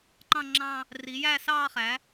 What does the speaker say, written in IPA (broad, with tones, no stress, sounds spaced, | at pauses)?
ǃ ɑ̃˥˧ ŋ͡ǁ ɑ̃˥˧ | r i˩˥ j æ˥˧ s ɑː˥˧ χ æ˩˥